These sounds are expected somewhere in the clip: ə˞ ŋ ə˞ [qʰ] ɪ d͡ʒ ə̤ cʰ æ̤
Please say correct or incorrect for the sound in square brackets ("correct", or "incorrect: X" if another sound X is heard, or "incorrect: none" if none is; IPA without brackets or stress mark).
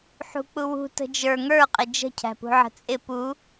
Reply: incorrect: qʼ